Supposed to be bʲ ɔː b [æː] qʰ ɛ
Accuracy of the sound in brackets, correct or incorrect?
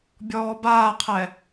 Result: incorrect